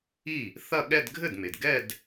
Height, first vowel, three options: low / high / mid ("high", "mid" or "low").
high